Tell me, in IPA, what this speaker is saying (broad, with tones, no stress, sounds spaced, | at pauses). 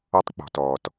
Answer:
ɔ˦ tˤ k͡p ɔ̤˨ t ɔː˨ t